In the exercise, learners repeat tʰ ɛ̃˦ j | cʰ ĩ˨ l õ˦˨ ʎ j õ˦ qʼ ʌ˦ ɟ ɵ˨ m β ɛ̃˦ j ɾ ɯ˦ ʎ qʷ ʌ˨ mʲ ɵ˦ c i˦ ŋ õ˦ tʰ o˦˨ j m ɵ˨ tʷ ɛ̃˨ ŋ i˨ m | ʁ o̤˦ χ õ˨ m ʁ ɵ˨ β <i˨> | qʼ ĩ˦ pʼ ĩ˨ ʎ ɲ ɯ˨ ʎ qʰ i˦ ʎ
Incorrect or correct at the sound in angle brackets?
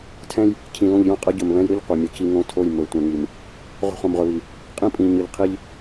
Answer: correct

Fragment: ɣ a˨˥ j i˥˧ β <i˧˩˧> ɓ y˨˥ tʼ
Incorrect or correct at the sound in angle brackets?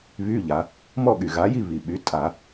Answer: incorrect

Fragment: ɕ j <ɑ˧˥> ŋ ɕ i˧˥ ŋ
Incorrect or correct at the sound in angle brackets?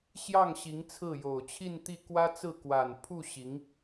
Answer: incorrect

